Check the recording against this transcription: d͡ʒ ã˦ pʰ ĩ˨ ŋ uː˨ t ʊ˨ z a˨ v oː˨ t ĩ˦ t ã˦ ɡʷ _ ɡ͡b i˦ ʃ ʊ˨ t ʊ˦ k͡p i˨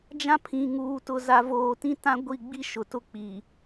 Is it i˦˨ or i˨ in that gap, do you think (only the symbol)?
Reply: i˦˨